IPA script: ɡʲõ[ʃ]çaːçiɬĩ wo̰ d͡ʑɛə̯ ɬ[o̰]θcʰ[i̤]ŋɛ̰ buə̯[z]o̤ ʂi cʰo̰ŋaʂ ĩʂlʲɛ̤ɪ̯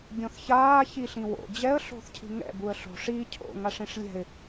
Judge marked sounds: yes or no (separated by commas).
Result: no, no, yes, no